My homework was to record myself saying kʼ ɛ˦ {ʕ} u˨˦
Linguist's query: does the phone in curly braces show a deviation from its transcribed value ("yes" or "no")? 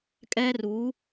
yes